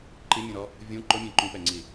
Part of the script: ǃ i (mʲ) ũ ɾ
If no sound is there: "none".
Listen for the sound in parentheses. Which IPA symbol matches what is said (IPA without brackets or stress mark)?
mʲ